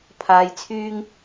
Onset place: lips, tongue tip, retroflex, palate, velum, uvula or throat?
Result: lips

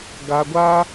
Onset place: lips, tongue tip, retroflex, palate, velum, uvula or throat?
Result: velum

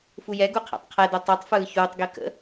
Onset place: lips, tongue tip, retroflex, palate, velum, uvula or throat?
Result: lips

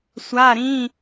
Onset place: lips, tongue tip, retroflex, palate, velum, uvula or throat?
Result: tongue tip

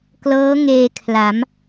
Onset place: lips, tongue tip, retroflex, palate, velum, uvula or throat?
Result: velum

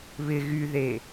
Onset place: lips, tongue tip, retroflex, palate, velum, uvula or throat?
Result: lips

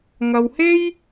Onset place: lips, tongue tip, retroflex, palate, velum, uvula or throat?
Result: velum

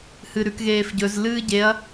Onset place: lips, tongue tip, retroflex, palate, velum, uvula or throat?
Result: throat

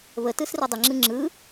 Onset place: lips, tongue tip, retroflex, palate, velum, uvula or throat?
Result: lips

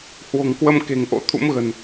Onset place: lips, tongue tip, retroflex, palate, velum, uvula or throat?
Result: throat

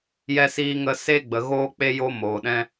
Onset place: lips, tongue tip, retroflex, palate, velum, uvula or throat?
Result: palate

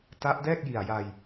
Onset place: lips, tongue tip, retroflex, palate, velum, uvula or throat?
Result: tongue tip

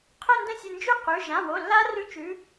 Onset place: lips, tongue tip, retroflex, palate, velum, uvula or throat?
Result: uvula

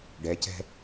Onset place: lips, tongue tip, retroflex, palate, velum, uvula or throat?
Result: retroflex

